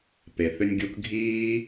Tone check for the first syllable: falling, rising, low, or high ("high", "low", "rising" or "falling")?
low